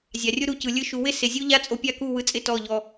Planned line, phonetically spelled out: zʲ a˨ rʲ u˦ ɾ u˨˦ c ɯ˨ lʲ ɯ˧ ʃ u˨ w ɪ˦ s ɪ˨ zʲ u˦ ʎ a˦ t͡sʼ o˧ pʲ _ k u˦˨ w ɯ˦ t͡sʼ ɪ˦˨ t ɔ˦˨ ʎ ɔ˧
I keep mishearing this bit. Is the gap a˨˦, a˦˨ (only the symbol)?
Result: a˦˨